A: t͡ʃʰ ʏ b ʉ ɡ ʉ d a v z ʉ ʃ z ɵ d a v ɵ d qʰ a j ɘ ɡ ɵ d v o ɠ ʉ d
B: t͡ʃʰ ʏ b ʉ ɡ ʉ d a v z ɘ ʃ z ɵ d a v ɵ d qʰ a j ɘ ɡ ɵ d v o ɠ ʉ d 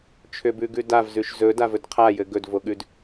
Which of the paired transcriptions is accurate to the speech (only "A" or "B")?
A